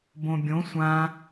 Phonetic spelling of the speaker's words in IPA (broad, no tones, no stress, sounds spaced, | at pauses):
b õ bʲ õ sʷ ã